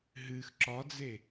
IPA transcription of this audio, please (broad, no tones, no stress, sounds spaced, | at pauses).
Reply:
ɦ ɨ x ǁ ɒ d͡z e